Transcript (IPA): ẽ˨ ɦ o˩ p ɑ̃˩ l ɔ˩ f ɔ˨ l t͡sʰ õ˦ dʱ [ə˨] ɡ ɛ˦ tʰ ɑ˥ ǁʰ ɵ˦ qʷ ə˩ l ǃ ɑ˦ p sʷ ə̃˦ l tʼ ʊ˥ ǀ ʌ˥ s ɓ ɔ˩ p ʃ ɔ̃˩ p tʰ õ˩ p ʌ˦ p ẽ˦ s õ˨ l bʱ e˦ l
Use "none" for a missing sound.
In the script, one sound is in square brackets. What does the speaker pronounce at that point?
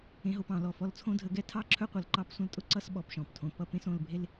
ə˨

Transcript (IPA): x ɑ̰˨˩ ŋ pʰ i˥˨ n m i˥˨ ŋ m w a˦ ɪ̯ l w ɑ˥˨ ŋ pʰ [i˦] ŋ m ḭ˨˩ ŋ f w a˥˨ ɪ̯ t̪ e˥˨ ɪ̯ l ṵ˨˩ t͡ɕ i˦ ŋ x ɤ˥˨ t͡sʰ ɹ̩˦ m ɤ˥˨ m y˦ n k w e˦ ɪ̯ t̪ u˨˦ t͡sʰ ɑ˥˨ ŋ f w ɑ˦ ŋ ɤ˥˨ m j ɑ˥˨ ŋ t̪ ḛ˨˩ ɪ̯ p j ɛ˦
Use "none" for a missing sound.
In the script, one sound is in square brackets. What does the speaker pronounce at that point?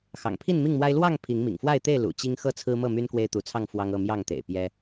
i˨˦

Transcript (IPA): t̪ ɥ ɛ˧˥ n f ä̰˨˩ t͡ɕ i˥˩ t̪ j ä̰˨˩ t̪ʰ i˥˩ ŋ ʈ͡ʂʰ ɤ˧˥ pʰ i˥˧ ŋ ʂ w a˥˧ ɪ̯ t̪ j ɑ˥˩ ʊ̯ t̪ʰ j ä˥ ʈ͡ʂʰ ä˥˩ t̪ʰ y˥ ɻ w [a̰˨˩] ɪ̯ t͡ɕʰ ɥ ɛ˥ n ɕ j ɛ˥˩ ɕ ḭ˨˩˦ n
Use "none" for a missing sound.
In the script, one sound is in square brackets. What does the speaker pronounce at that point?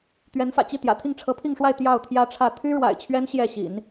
a̰˨˩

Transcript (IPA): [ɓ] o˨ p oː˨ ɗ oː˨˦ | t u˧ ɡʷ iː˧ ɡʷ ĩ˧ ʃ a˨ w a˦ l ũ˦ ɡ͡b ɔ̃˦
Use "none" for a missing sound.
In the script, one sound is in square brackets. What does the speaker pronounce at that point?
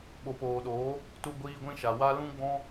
ɓ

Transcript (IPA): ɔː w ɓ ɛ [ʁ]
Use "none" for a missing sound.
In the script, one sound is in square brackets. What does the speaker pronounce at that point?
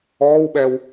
w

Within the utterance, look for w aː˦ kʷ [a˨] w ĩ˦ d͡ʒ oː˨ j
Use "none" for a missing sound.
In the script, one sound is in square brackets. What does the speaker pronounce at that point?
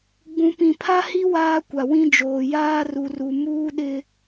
a˨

